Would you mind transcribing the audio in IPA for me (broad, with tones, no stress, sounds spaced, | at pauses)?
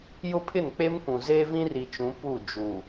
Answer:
j ʊ˦ pʰ ɪ˦˨ n k͡p e˦ m kʷ ũ˨ z eː˦ v ĩ˦ r i˨ t͡ʃ ũ˨˦ p u˦˨ d͡ʒ u˨